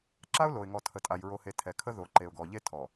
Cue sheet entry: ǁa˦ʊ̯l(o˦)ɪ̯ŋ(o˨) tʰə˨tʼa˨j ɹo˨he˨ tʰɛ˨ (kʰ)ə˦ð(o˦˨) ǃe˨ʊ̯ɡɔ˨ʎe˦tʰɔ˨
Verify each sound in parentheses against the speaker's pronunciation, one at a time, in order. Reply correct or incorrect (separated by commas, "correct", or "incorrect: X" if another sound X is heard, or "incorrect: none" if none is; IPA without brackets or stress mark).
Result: incorrect: o˨, incorrect: ɔ˨, correct, incorrect: o˨